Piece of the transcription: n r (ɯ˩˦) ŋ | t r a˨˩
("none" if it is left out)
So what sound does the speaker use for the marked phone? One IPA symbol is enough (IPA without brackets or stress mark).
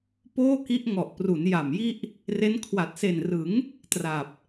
ɯ˩˦